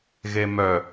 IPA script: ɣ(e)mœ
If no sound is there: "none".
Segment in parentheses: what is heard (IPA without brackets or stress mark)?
e